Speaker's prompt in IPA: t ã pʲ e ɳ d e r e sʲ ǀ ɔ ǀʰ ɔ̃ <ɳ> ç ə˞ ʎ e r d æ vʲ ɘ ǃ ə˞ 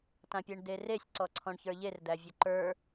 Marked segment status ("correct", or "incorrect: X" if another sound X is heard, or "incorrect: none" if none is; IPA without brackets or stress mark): correct